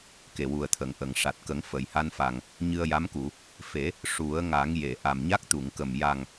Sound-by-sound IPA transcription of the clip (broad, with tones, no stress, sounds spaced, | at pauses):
k e˨˩ w u˨˩ ə̯ t̪ʰ ə˨˩˨ ŋ ʔ ə˨˩˨ ŋ ʂ a˨˩ t̚ k ə˨˩˦ ŋ f ə˨˩˨ j h a˧ n f a˨˩ ŋ | ɲ ɨ˧ ə̯ j a˧˥ m k u˨˩˨ | f e˨˩˦ | ʂ u˨˩˦ ə̯ ŋ a˨˩˦ ŋ j e˨˩˨ ʔ a˨˩ m ɲ a˦˥ k̚ t̪ u˨˩˨ ŋ k ə˨˩ m j a˨˩ ŋ